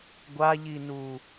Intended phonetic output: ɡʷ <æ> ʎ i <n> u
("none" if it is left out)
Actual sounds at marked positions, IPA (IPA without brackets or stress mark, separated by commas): a, n